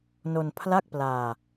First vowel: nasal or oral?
oral